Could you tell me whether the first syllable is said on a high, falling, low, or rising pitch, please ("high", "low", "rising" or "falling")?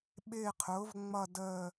falling